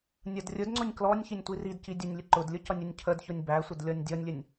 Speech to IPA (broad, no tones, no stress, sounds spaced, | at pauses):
nʲ ʌ d rʲ ʊ d ŋ͡ǀ ʊ nʲ k l ɔ nʲ ç i nʲ tʷ i r i d c i dʲ ʊ nʲ lʲ ə ǃ ʊ d lʲ ʊ c ʌ nʲ ʊ nʲ cʰ ə d ç ʊ nʲ b æ sʷ ə d lʲ ɔ nʲ dʲ ɔ nʲ lʲ ə nʲ